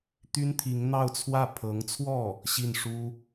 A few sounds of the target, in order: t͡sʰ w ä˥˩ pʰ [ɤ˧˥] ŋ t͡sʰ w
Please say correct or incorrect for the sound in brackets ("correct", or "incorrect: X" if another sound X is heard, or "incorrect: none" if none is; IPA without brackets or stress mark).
correct